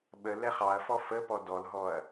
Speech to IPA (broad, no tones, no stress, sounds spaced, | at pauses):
ɓ ə l ɛ χ ɑ ɐ̯ f ɔ f ə p ɔ d ɔ l ɦ ɔ ɐ̯